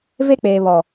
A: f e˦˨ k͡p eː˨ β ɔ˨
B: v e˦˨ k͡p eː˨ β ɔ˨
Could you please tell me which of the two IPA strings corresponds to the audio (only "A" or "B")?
B